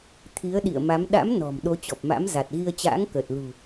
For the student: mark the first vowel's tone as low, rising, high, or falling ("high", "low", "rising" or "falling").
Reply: rising